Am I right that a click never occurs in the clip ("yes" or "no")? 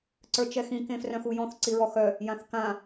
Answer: no